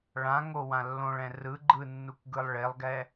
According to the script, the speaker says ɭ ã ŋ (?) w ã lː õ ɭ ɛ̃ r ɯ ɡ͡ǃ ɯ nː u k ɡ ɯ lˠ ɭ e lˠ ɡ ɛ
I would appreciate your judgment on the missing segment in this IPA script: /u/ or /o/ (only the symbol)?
o